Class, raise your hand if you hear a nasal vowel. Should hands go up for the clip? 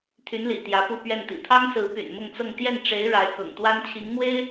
no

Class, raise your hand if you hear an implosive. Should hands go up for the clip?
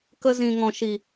no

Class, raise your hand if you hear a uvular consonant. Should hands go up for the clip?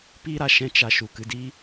no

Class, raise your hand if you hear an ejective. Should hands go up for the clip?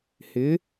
no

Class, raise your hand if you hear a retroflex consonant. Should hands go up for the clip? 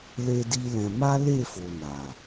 no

